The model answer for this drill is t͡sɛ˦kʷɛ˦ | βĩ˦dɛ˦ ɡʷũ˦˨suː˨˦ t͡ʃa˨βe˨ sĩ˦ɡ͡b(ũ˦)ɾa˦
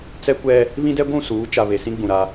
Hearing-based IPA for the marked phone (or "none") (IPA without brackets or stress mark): ũ˨